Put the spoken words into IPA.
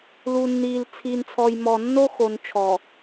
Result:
lu˨nːiː˨l t͡sʰiː˨nt͡sʰɔ˨jmɔ˨ nːo˦ xo˨nt͡ʃʰɔ˨

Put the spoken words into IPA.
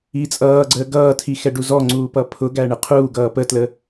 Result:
it͡sʼʌːɡ͡ǀəː ɡʌːtʰi xɛɖuzɔŋ͡ǀuː pʌpʰʊɡæ ɳɪqʰuːɡʌː pətlə

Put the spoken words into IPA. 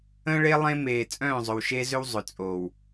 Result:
ə̃ː˦ɭe˦ lˠẽ˦meː˨ t͡sʼœ̃ː˦˨zˤʏ˨wʃe˦zʏ˦w zˤʏ˨t͡sʼoː˨w

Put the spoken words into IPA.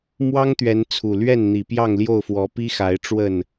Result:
mwɑ˦ŋt̪ɥɛ˨˦n t͡sʰu˨˩ lɥɛ˥˨nn̪i˨˩ pjɑ˥˨ŋljo˥˨ʊ̯fwɔ˨˦ pi˦xa˨˦ɪ̯ʈ͡ʂwə˥˨n

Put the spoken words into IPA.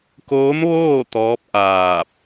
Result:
koː˧˥m ʋoː˥˨ t̪ɔː˧˥p̚ʔaː˧˩p̚

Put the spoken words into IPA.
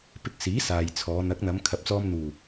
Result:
pɪ˧k̚siː˨˥ saː˨jt͡sʰɔː˨˧ n̪ɐ˨˥k̚n̪ɐ˨˧m kʰɐ˨˥p̚t͡sɔː˧m n̪uː˨˩

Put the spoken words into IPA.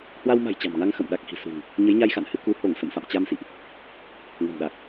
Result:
hwa˧wma̤˨˩j t͡ɕa̤˨˩mŋa˧ŋ xə̰˧˨m ɗa˨˩k̚hi̤˨˩sṳ˨˩ŋ | ɲə˨˦jɲa˧jxa̰˧˨nhɨ˧ ku˨˦ho˧˩ŋ sə̰˧˨mfa̰˧˨m t͡ɕa˧msḭ˧˨ʔ | ŋə̤˨˩mɗa˨˩k̚

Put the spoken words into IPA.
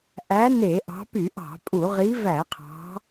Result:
ʔæ˨˦ ne˧˩˧ʔɑ̤˨˦ py˧˩˧ʔɑ̤˧˩˧pʼu˧˩˧ ʁi˨˦væ˧˩˧qʰɑ̤˨˦

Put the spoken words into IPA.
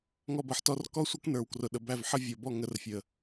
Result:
ŋɔ˧bʌ˨ħtɔ˦˨r kɔ˦sʷʌ˦knə˞˨w krʊ˨ɗə˨ bæ˦˨vħə˦ vʲɔ˨bɔ˦˨ ŋə˨˦rfʲə˨

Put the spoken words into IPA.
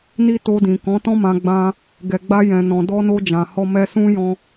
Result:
ni˧ to˧dĩ˨ kɔ̃˨˦tɔ̃˦mã˧ɡ͡bã˧ | ɡɛ˨ɡ͡ba˧ jɛ̃˨nɔ̃˨ dɔ˧no˧ d͡ʒã˨hɔ˧ mɛ˧sũ˦ jɔ̃˧

